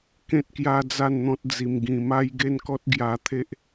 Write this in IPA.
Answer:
kẽ˦t̚kja˦d͡za˥˧nn̪ɔ̃˦t̚ d͡zi˧mɡĩ˧ ma˦jɡe˥˧nkɔ˦t̚ ɡja˦ t̪ʰe˦ʔ

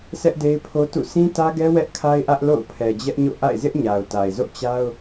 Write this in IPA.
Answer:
sʰɛ˦ʔde˦ɪ̯pʰo˦tṵ˦˨ sĩ˦tä˦ɡɛ˦ wɛ˦ʔkʰa˦ɪ̯ʔä˦ʔ lo̰˦˨ʊ̯pʰɛ˨d͡ʑɛ˦ʔɲo̰˦˨ ʔa̰˦˨ɪ̯zɪ˦ʔɲa˨ʊ̯ ta˨ɪ̯zo̰˦˨ t͡ɕa˦ʊ̯

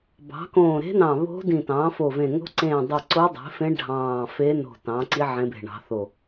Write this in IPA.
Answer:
bɑ̤˩˥kõː˧˩ ɾe̤˧˥nɑ̃˧˩ βo̤˧˥ dĩ˧˩tɑ̃ː˩˥fo˧˩vẽ˧˩ ŋo̤˧˥ǀẽː˧˩ dˤe˧˩ ǀo˧˥dˤe̤˩˥fẽ˧˥ ɖʱɑ̃ː˧˩fe˧˥ no̤˧˩tɑ̃˩˥ǀi˧˥ ʕẽ˧˥be̤˧˩ɳɑ̤˩˥θo˧˩

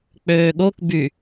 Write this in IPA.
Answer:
k͡pøːɠok by

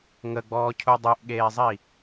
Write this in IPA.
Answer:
ŋəɡ͡bɔː cʰudˤeʔɠeːzˤi

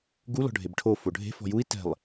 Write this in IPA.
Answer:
ɡu lɔ̤ɖʱebʈʰo foɖʱe̤ fɔ̤jui̯ tɛ̤lˠ

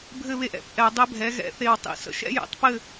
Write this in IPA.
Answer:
bʱɘ˥˧βe˥˧ʔɛ̰˧˩˧p ʔɛ˧˩˧dˤɘ˦˥bʱɛ˨˥ɣɛ̰˨˥ θe˥˧wtˤḭ˥˧sə̰˦˥ ʃɛ̰˦˥jɛ̰˧˩˧tˤpɘ˥˧

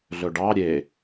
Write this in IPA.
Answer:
ɮɵɖɑ ɾʲe

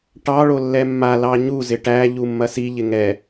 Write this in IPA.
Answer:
ʈɑ ɭolːɛmːa lɑɲu zɪʈæ ʎumːɐsi ʎɪŋɛ

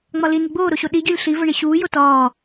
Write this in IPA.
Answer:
ŋ͡mɒli niɡ͡boːɾoɕo ɗiɟolʲ ɬivə ɳiɕuː jotɒː

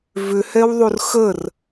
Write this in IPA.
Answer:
vʏhɛwðˤur xər

